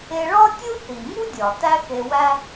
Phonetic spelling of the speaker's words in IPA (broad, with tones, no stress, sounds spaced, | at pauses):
e˧ ɭ ɒ˥ tʲ u˥ θ i˩ ŋ u˥ dʲ ɒ˩ t æ˥ x e˧ w æ˥